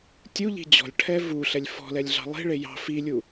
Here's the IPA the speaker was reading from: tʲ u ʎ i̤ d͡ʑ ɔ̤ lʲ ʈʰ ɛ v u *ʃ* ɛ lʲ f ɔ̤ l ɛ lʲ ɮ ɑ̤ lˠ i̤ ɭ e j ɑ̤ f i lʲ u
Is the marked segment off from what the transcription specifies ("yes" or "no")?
yes